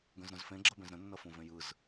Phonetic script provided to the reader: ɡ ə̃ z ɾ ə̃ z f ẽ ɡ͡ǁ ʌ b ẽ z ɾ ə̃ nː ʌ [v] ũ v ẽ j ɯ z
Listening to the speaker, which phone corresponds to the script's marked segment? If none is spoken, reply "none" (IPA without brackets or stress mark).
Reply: f